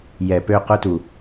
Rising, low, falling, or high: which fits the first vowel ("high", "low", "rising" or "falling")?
low